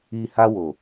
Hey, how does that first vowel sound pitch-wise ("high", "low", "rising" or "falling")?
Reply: low